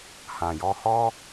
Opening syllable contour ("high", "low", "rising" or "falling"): low